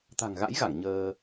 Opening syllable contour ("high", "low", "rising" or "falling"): low